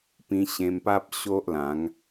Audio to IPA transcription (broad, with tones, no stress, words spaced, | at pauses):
pĩ˧ɕẽ˧mpa˦p̚ ɕo˦ʔlã˨˦ŋ